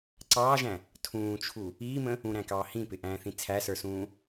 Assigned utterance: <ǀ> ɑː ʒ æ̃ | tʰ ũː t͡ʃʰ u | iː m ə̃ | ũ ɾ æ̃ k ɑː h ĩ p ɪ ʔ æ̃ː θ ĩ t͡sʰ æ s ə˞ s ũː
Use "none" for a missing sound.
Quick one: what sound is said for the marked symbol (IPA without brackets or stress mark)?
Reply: ǀ